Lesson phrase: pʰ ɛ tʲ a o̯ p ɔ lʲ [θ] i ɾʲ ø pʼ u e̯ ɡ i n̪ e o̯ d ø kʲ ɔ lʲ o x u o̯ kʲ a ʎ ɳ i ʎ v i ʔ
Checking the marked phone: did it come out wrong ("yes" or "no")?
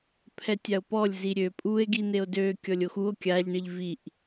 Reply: yes